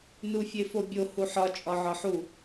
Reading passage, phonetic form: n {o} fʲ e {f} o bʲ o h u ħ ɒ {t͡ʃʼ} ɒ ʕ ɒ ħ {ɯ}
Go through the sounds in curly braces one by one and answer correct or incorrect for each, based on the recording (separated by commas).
incorrect, correct, correct, incorrect